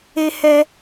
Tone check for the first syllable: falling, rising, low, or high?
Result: high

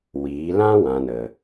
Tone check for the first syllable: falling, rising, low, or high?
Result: rising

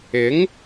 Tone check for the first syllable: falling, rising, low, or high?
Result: rising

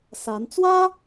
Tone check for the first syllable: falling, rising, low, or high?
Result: rising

